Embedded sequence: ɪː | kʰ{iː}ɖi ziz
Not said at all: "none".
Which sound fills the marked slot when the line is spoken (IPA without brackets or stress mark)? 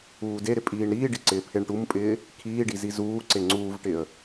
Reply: iː